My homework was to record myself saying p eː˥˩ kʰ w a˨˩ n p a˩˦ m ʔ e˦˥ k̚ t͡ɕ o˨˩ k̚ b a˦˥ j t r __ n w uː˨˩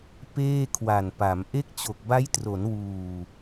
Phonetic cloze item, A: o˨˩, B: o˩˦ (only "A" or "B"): B